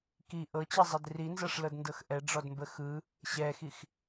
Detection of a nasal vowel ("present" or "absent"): absent